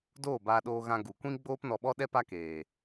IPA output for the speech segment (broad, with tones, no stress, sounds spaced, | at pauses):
d oː˦˨ b aː˧ ɗ oː˧ ɣ ã˧ ɡ u˨ kʷ ĩ˦ ɡ͡b oː˦ p n ɔ˧ ɓ ɔ˦ ɗ ɛ˦ p a˦ k eː˨